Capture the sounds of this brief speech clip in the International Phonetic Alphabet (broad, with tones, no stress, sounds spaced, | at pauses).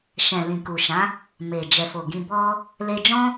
ʃ ɛ̃˨ l ĩ˨ k u˨ ʃ ã˨˦ | m e˨ d͡ʒ ɛ˨ f o˨ ɡ ĩ˧ b ɔ˦ | l e˧ d͡ʒ ɔ̃˦